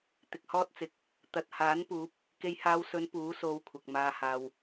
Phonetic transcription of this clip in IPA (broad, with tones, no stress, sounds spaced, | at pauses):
t̪ ɪ˨ k̚ h ɔː˥ t̚ t͡s ɪ˨ k̚ | t̪ ɐ˨ t̚ h aː˨˥ n p uː˨˥ p̚ | k e˧ j h aː˧ w s ɵ˨˧ n p uː˨˥ s o˧ w kʷʰ ɐ˨ k̚ m aː˧ h aː˨ w